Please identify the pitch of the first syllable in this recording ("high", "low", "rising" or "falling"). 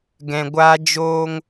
low